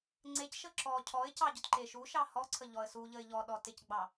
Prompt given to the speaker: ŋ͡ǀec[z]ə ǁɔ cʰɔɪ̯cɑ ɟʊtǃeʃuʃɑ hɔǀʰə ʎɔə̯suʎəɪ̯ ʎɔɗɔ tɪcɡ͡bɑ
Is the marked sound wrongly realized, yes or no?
yes